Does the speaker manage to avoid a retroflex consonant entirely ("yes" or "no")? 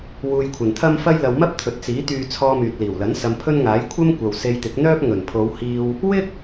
yes